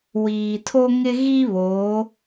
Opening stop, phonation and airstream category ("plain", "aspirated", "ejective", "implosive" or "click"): aspirated